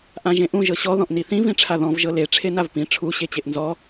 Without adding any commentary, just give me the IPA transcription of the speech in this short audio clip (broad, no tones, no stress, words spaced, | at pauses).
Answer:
ʔãʒẽʔũ ʒɤɕɔ ðɔ̃ʔniθĩ vĩʈ͡ʂʰaðɔ̃v ʒɤle ʈ͡ʂʰenavpĩ ʈ͡ʂʰu ɕet͡ɕeʔnzɔ